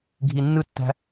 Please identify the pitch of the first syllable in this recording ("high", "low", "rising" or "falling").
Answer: low